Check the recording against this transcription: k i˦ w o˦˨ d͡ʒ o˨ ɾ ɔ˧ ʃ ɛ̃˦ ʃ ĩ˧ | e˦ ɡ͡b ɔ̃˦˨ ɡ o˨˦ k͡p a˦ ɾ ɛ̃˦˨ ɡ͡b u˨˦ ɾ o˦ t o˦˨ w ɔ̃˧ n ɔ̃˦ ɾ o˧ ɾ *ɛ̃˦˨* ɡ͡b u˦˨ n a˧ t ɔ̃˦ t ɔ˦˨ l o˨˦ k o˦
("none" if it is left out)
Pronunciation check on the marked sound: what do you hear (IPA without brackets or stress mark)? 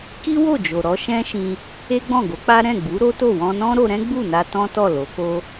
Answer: ɛ̃˦